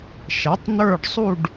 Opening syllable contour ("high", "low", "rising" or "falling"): rising